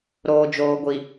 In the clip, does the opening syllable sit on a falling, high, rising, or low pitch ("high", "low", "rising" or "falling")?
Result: low